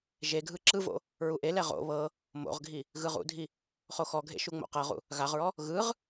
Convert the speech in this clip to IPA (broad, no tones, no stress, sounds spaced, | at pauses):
ʒ e ɡʱ ɯ ǁ ɯ v o̰ | ɹ u ʔ e l ɛ ʁ o̰ β ɤ | m o̰ ʁ ɡʱ i | ɣ ɯ ʁ ṵ dʱ i | χ o x ɔ ɡʱ ḛ ʃ u ŋ͡m o̰ q ɤ ʁ ṵ | ɣ a ʁ ɹ ɔ | ɣ ɯ ʁ